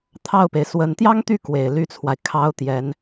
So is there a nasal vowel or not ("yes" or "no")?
no